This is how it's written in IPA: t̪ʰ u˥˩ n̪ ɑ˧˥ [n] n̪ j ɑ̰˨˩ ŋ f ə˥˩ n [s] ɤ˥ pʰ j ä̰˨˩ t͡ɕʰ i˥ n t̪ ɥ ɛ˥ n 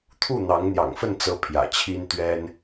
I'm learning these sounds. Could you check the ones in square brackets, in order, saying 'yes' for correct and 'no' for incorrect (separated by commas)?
no, no